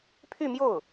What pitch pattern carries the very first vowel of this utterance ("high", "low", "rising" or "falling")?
falling